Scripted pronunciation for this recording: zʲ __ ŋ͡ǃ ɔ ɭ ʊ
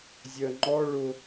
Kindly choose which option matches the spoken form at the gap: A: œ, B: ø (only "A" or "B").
A